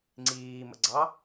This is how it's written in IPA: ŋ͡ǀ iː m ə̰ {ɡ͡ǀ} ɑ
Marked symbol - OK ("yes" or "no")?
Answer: yes